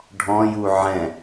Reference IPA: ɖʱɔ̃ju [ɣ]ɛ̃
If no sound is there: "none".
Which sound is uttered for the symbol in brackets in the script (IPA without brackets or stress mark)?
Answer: ʕ